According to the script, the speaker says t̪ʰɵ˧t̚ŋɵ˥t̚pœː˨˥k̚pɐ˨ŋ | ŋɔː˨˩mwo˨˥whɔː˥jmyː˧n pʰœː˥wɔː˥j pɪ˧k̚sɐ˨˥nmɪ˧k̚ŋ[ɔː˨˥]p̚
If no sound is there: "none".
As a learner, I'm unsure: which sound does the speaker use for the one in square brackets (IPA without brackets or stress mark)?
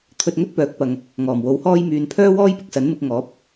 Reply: ɔː˨˥